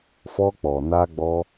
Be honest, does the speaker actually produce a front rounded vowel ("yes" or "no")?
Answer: no